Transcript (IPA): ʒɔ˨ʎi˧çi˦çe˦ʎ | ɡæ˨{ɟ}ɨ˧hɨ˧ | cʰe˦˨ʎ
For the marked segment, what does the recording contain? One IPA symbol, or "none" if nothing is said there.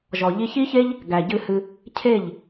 ɟ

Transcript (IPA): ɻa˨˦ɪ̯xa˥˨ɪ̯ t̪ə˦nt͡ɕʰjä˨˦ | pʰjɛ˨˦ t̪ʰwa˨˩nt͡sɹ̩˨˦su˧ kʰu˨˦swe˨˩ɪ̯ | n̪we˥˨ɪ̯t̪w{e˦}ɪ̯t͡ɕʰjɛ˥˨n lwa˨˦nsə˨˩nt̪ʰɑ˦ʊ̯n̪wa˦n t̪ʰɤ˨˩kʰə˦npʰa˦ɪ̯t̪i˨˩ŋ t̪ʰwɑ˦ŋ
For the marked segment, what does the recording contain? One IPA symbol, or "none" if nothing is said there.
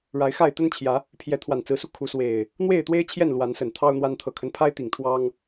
e˦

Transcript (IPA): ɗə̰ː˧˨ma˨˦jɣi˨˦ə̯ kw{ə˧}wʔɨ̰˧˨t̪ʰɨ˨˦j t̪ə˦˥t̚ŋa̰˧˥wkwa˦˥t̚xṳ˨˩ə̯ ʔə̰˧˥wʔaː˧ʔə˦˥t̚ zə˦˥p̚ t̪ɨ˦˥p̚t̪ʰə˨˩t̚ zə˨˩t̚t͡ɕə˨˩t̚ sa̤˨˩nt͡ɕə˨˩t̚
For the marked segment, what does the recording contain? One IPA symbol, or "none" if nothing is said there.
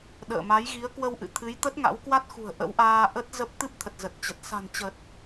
ə˧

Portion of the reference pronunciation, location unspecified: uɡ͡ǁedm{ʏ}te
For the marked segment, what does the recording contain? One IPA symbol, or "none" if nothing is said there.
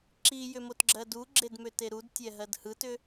ʏ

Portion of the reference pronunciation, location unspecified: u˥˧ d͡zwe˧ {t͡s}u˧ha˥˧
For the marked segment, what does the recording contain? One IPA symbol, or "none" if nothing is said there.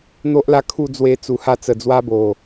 t͡s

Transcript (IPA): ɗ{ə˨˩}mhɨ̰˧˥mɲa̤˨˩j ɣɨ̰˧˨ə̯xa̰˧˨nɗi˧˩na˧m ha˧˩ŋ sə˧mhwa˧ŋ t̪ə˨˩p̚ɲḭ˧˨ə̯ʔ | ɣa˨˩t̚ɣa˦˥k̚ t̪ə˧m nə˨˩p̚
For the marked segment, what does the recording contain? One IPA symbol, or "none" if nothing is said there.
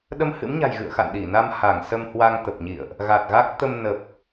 ə˧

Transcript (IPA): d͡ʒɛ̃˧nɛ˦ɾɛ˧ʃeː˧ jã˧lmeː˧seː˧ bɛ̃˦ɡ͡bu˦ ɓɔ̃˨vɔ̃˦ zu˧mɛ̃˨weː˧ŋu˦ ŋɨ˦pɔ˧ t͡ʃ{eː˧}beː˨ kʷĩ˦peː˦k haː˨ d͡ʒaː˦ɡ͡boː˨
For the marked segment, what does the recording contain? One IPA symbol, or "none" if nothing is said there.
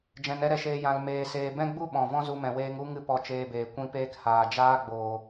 eː˧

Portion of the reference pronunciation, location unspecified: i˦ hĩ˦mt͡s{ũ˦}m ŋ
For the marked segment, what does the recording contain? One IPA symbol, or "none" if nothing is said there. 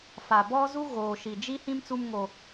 u˦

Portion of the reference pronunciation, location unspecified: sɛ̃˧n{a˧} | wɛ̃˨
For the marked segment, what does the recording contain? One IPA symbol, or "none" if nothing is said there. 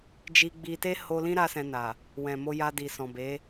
a˨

